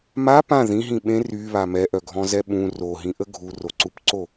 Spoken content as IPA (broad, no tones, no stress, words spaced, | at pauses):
ma pã ðĩɦĩ ɓẽ ryβa mɛʔœɡʱɔ̃zɛ ɓũ roɦĩʔə ɡʱuroǀupǀo